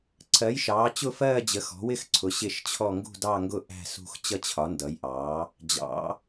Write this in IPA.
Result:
ǀʰ ɜ˨˥ j ʃ ɑː˨˥ t͡ɕ ʊ˥˧ f ɜː˥˧ d͡ʑ ə˨˥ x ɔ̤˨˥ w ɪ˥˧ x ǀʰ ʊ˨˥ ɕ ɪ˥˧ ʃ t͡ɕʰ ɔ˥˧ ŋ ɡ ṳ˥˧ d ɑ˥˧ ŋ ɡ ʊ˥˧ ʔ æ̤˥˧ s ṳ˥˧ x t͡ɕ ʌ˥˧ t͡ɕʰ ɒ˨˥ n d ʌ˨˥ j ʔ ɑː˨˥ | d͡ʑ ɑ̰˨˥

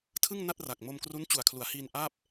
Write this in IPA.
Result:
tʰ ɯ˥˩ ŋ n a˥˩ t̚ r a˨˩ k̚ m o˧ m k r u˦˥ n t͡ɕ u˨˩ a̯ kʰ l u˩˦ a̯ h iː˧ n ʔ aː˥˩ p̚

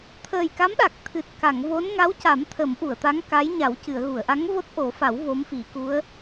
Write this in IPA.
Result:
t̪ʰ əː˨˩ j k a˧˥ m ɗ a˨˩ k̚ t̪ʰ ɨ˨˩ t̚ k a˨˩˨ ŋ v o˧˥ n ŋ a˧˥ w c a˨˩˦ m t̪ʰ ə˨˩˦ m ʔ u˨˩˨ ə̯ t̪ a˧˥ ŋ k a˧˥ j ɲ a˨˩˦ w c ɨ˨˩˨ ə̯ ɣ u˨˩˨ ə̯ ʔ a˧˥ ŋ v o˦˥ t̚ ʔ o˨˩˦ f a˨˩˦ w v o˧˥ m f i˨˩˦ k u˧˥ ə̯

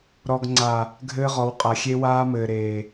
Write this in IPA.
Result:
ɾ ɔ˨ ɡ ŋ͡ǀ a˨ | ɡʱ ɘː˦ ʁ ɔ˨˦ w qʼ a˨ xʲ e˦ w aː˦ m ɘː˨ ɾ eː˨

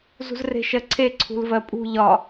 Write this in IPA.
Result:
z ṳ z r e̤ ʃ ɜ ǀʰ e ǀʰ ṳ l v ɜ pʼ ṳ ʎ ɒ

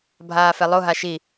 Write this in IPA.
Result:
bʱ aː f ɛ lˠ o ɦ a ʃ i

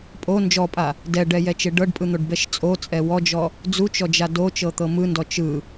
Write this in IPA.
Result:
pʼ o n d͡ʒ ɔ pʼ a | d ɛ ɖ ɛ j ɛ t͡ʃ e ɖ ɤ ɖ pʼ ɯ n̪ o ɖ b ɛ ʃ t͡sʼ o t͡sʼ ɛ w ɔ d͡ʒ ɔ | d͡z u t͡ʃ ɔ d͡ʒ a d o t͡ʃ ɤ t̪ ɤ m ɯ n d ɔ t͡ʃ ɯ

